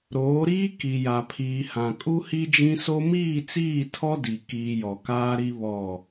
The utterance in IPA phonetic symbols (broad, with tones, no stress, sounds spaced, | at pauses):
ɾ oː˨˦ ɾ iː˦ k i˨ j a˨ pʰ iː˨ h ã˨ kʼ u˦ h i˦ d͡ʒ ĩ˦ s o˦ m iː˦˨ t͡s iː˦˨ tʰ ɔ˦ d i˨ k iː˦ j ɔ˨ k aː˦ ɾ i˦ β ɔ˦˨